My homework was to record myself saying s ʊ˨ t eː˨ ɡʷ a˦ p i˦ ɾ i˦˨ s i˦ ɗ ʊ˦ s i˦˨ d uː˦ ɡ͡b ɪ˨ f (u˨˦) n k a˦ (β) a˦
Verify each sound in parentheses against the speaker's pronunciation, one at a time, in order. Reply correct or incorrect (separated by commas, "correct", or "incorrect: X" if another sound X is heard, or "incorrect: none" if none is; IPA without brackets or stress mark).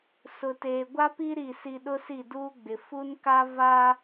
incorrect: u˦, incorrect: v